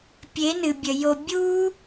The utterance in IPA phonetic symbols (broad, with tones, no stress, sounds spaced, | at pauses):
pʲ e˨˦ n ɨ˨ bʲ ə˨ j o˧ bʲ u˦